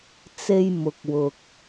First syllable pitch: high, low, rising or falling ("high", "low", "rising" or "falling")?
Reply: high